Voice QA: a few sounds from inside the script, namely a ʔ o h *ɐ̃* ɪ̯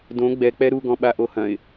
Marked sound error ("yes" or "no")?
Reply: no